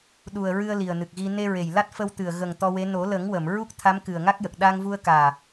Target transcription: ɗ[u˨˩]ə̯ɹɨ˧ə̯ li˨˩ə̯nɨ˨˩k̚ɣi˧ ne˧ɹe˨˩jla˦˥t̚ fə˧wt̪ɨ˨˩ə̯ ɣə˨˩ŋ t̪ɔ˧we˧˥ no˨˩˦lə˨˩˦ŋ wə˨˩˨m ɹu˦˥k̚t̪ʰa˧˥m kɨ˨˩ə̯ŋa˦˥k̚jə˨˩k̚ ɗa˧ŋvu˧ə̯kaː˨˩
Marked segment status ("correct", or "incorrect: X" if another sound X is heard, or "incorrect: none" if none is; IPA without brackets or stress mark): correct